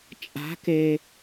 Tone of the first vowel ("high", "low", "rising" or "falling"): rising